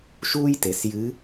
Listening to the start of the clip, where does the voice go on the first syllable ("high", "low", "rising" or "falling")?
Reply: high